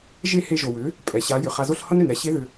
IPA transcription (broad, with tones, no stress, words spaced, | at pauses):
ʒe˦˨he˧ʒo˨wʏ˨˦ | pʼɛ˨ɕa˨˦ jʏ˨χa˧zo˦ɬ hʌ˦nʏ˨nɾɛ˨ ɕe˦ðʏ˧